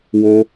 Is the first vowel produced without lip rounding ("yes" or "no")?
no